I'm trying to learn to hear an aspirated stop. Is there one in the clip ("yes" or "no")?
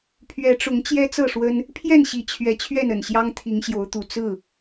yes